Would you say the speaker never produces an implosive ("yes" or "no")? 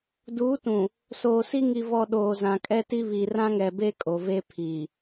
no